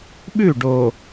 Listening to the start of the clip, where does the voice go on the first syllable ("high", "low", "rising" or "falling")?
falling